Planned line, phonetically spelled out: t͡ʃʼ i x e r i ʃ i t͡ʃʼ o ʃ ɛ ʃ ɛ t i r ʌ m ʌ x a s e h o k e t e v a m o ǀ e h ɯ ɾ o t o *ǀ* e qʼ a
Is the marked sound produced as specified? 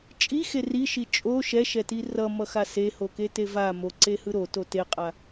no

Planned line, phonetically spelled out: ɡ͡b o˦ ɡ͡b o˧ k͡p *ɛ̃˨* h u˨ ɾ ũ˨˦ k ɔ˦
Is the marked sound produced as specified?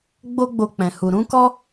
yes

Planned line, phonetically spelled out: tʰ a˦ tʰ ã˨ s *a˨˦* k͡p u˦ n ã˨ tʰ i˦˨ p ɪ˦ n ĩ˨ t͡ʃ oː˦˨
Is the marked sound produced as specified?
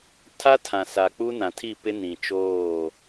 no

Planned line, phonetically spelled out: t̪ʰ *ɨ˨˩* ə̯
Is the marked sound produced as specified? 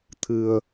yes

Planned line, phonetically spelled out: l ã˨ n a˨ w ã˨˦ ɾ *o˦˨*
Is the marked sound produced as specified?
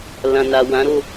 yes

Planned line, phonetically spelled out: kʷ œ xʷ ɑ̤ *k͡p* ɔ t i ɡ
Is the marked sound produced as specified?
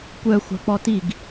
yes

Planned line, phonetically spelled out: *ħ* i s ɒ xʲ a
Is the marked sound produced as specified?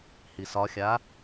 no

